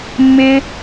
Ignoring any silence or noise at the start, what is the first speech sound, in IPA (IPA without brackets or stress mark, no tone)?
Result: mː